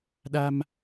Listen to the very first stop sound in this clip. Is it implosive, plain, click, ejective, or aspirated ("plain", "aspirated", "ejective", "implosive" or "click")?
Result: implosive